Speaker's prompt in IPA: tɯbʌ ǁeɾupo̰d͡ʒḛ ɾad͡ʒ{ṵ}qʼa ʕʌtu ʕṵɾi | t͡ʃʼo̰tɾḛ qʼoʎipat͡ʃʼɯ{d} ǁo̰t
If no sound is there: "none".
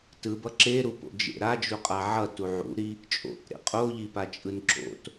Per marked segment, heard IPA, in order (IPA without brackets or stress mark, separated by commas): u, n